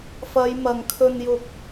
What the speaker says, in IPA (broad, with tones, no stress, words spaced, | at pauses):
fɐ˨˧j mɐ˨ŋkʰɵ˧njʊ˧k̚